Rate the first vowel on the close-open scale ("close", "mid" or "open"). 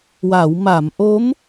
open